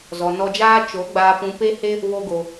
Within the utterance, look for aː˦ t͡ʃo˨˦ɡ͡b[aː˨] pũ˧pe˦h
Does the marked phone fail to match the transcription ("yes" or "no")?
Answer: yes